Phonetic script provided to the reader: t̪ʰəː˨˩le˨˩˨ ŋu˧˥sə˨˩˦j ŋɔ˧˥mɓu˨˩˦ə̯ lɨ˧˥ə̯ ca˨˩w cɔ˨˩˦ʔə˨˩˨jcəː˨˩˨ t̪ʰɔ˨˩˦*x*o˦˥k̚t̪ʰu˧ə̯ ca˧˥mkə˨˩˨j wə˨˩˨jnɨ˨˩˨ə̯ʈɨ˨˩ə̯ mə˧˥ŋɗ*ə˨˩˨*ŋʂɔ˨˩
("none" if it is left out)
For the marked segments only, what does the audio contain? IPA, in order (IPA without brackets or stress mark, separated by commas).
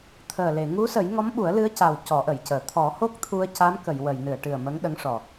h, ə˧˥